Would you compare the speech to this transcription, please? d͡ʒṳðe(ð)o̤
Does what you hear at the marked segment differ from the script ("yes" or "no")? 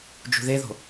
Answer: no